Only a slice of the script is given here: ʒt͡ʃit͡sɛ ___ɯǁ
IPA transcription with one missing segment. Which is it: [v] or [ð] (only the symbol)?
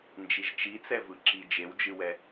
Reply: v